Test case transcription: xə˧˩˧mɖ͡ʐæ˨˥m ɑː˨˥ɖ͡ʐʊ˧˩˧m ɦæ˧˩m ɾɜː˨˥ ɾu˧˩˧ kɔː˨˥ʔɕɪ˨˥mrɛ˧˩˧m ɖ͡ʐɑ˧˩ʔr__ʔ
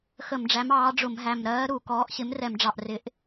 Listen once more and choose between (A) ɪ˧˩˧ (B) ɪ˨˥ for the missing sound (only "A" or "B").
B